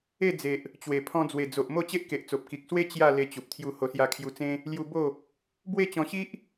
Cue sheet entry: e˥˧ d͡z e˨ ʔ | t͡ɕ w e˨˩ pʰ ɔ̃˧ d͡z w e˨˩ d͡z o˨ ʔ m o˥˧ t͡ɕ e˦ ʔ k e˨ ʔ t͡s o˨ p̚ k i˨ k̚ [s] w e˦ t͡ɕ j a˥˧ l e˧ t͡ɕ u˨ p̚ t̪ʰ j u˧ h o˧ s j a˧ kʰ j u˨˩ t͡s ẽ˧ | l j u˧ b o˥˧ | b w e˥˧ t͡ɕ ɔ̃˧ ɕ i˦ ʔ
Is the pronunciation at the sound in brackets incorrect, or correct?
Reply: correct